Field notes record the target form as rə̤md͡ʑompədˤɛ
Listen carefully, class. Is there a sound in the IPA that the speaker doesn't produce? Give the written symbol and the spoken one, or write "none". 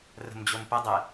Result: none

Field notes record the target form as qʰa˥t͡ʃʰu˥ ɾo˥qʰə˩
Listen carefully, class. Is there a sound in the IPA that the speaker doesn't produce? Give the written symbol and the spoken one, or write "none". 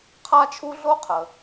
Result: ɾ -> ɮ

